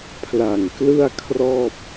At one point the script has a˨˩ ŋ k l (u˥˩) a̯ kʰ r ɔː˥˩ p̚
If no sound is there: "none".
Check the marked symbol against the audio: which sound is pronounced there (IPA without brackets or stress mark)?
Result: ɯ˥˩